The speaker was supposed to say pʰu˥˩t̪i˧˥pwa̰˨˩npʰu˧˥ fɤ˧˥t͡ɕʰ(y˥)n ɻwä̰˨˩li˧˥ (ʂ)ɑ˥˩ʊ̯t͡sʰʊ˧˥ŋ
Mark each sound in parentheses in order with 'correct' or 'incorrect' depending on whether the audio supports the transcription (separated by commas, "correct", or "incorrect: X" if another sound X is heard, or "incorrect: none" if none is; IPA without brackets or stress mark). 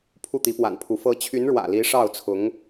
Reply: incorrect: y˧˥, correct